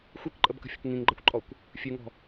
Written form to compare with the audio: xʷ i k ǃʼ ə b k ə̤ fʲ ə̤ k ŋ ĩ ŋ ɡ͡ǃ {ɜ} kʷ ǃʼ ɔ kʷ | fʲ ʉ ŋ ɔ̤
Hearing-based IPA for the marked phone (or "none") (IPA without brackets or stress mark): ɜ